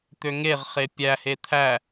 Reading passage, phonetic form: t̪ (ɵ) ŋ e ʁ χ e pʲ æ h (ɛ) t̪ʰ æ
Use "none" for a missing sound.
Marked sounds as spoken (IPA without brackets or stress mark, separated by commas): ø, e